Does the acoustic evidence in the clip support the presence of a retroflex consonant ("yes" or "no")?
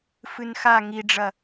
yes